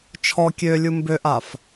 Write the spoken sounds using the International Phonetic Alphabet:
t͡ʃʰ ɔ kʲ ø lʲ u m b ø ʔ a f

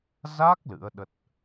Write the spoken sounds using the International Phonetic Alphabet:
z a˦˥ k̚ l ɨ̰˧˥ ə̯ ɗ ə˦˥ t̚

